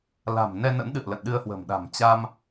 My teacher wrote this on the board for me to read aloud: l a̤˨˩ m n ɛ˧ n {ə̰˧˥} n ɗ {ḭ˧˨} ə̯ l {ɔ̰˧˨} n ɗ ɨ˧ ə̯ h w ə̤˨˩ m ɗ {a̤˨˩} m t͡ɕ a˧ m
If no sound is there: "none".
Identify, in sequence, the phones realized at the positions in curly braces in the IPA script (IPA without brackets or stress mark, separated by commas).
ə̰˧˥, ɨ̰˧˨, ə̰˧˨, a̤˨˩